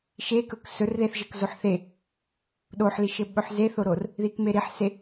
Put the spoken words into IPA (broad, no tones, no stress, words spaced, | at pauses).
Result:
ʃekɵk sɵrðeθʒɘkzoħ θe | ɗoħliʃɘ ɓɵħzeθoɾor | ðikmeɾiħse